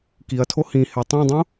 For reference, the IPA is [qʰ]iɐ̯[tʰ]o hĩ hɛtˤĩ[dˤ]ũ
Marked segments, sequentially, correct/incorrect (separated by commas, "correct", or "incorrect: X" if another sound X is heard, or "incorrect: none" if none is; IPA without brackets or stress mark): incorrect: k, correct, correct